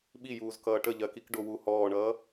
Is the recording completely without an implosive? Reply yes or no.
no